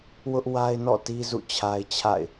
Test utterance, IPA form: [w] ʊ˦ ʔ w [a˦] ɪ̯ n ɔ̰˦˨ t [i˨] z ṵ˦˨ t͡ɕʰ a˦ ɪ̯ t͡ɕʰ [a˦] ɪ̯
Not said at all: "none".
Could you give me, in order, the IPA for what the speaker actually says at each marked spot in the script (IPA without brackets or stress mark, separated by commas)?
w, a˦, i˦, a̰˦˨